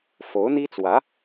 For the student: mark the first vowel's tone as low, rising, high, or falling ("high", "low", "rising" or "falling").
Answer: rising